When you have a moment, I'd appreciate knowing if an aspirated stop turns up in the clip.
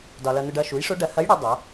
no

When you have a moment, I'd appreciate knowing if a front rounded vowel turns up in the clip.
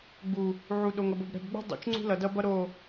no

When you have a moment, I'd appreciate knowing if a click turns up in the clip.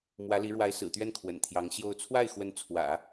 no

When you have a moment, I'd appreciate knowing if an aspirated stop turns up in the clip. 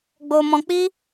no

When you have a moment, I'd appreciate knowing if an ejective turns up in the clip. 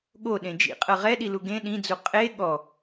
yes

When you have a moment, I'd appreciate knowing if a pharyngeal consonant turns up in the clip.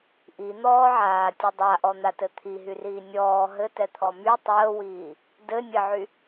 yes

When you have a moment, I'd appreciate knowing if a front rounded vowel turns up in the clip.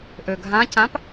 yes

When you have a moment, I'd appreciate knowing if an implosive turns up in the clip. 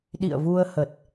yes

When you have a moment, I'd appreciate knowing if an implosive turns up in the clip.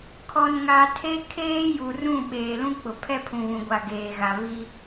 yes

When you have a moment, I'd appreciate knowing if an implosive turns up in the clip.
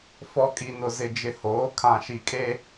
no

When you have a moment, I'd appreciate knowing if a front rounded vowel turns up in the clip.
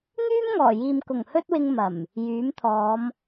yes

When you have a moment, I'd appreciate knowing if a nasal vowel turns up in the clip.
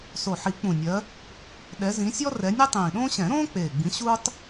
yes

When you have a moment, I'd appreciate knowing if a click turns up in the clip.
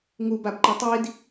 yes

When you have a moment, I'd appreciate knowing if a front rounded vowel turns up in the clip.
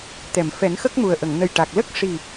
no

